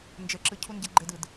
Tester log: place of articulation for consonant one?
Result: alveolar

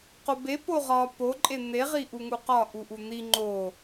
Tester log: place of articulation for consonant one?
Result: uvular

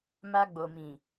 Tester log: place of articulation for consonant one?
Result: labial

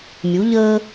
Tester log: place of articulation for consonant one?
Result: labial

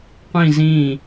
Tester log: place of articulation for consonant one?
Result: uvular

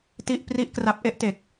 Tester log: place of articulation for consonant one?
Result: alveolar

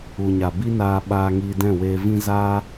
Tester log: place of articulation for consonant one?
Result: palatal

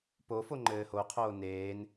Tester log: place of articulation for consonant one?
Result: labial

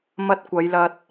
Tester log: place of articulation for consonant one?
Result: labial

